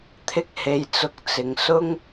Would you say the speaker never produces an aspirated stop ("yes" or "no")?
no